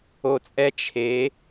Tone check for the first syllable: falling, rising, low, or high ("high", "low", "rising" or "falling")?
low